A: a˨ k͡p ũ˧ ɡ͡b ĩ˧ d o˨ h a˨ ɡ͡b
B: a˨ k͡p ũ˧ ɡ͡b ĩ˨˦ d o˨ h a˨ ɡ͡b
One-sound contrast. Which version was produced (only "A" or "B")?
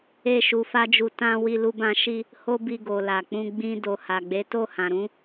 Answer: A